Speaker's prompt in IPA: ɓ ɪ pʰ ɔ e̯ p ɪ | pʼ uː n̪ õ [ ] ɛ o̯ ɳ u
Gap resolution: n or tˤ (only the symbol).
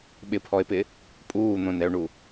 n